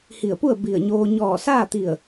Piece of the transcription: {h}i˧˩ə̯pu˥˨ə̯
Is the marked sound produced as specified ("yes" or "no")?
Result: yes